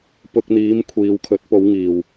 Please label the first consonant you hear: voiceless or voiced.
voiceless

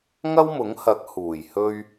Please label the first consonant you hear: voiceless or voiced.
voiced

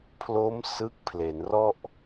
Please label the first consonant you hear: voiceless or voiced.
voiceless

